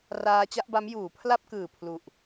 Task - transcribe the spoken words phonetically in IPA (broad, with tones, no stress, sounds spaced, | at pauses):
r aː˧ t͡ɕ a˥˩ ʔ b a˦˥ m j uː˩˦ pʰ l a˥˩ p̚ k ɯː˨˩ pʰ l u˨˩ ʔ